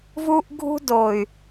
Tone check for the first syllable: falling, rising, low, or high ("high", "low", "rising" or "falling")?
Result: high